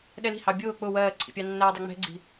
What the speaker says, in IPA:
ɗ ɛ l i̤ h ɑ bʲ ʊː k͡p ʊ w ɜː ǀʰ ḭ pʲ ɑ nː æː dˤ ɑ ŋ͡m ɛ̤ ɡ͡ǀ i̤

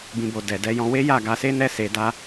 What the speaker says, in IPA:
b ĩ˨ b o˨ d ɛ˨ d ɛ˧ j ɔ̃˧ w e˦ j a˦˨ ɡ a˧ s e˦ n ɛ˦ s e˧ d a˦

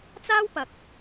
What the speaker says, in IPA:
t͡s aː˥ w p ɐ˨ k̚

